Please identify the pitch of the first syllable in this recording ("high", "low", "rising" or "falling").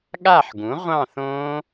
falling